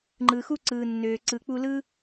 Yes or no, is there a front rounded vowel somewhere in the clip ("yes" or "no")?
yes